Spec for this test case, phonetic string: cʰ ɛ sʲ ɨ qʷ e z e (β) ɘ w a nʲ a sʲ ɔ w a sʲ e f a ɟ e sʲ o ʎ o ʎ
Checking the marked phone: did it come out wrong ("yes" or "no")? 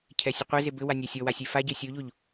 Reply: yes